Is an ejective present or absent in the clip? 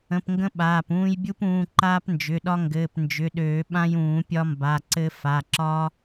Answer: absent